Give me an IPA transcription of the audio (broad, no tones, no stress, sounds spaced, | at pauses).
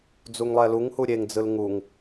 d͡z u ŋ lˠ ɛ l u ŋ h u ɾʲ e ŋ d͡z ɯ l ŋ u ŋ